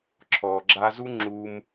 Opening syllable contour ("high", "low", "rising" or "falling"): low